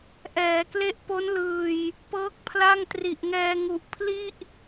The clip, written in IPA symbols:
ʔ ɛː˩˦ k l e˦˥ ʔ p o˦˥ n l ɯː˨˩ j | p ɤː˦˥ k̚ pʰ l a˥˩ ŋ t r i˨˩ ʔ ŋ ɛː˧ ŋ u˨˩ ʔ pʰ l i˥˩ ʔ

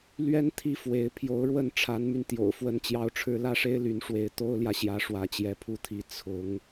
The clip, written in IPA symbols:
l ɥ ɛ˥ n t̪ʰ i˥ f w e˧˥ ɪ̯ pʰ j o˧˥ ʊ̯ ɻ w ə˥˩ n ʈ͡ʂʰ a˧˥ n m y˧ n t̪ j o̰˨˩ ʊ̯ f w ə˥ n t͡ɕ j ɑ˥ ʊ̯ ʈ͡ʂʰ ɻ̩˥ l ä˥˩ ʂ e˥ ɪ̯ l y˧˥ n ʂ w e˧˥ ɪ̯ t̪ o˥ ʊ̯ l j ä˨ ɕ j ä˧˥ ʂ w ä˧˥ t͡ɕ j ɛ˧˥ pʰ u˧˥ t̪ʰ i˧˥ t͡sʰ ʊ˧˥ ŋ

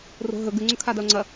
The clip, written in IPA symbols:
r o̤ ɦ ɵ ɡ ʉ ŋ͡ǀ ɵ kʰ a d ɐ o̯ ŋ͡ǀ ɐ

